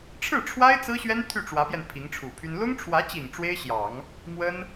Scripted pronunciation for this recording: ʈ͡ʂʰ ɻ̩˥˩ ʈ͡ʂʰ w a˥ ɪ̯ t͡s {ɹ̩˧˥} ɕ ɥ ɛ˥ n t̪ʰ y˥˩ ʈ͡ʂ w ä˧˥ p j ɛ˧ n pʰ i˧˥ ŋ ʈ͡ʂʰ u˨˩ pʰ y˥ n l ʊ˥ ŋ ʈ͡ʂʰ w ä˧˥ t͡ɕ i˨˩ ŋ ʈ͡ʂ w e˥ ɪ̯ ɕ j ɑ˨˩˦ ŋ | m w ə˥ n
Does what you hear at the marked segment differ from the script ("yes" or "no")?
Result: yes